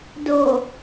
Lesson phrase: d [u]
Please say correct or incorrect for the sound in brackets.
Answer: incorrect: o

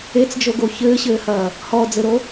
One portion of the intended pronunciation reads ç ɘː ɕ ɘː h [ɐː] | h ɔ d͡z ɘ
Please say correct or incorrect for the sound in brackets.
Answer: correct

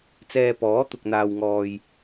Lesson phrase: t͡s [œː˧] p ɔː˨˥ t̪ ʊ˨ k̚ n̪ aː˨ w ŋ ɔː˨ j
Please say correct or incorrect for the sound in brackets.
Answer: incorrect: ɛː˧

